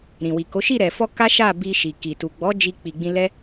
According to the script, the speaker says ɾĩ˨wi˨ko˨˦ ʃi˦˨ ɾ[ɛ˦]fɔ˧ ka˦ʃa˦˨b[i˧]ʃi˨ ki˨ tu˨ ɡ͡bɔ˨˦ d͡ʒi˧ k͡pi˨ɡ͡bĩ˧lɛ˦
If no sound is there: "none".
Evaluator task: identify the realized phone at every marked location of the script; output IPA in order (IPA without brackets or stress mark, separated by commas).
ɛ˨, i˧